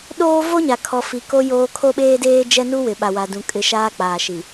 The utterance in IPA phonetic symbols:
ɗ oː˦ v o˦ ɲ a˨ kʰ ɔ˨ f i˨ k o˦ j oː˦ kʰ o˦ ɓ eː˦ d eː˦ d͡ʒ ɛ˦ n u˦ w ɪ˨ ɓ a˨ w a˨ d ũ˨ kʼ ɪ˨ ʃ aː˦ k͡p aː˨ ʃ i˨

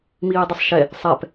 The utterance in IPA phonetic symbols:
m iː dˤ ɪ sˤ ʃ ɛ | sˤ ɛ p

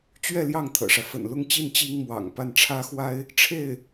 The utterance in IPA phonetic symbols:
t͡ɕ ɥ ɛ˥˧ l j ɑ˥˩ ŋ t̪ʰ ɤ̰˨˩ ʂ ä˦ f ə̰˨˩ n l ʊ˥˧ ŋ t͡ɕ i˥˩ n t͡ɕ i˥ ŋ m w ɑ̰˨˩ ŋ p a˥˩ n ʈ͡ʂʰ ä˥ x w a˥ ɪ̯ | ʈ͡ʂʰ e˥˩ ɪ̯

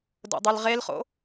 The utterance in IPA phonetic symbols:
d o̰ dˤ ɪ l ʁ e l χ o̰

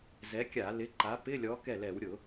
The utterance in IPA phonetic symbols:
z ɛ˨˥ kʲ a˧˩˧ l ɪ˨˥ ǃ a˨˥ p ɪ˧˥˧ lʲ ɔ˨˥ k ɛ˥˩ l ɛ˧˩˧ w ɾʲ ʊ˧˩˧

